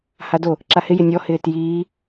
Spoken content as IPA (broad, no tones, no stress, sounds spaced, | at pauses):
h a d o | ǁ a h ɪ j ɪ nʲ ɔ h ɪː t j iː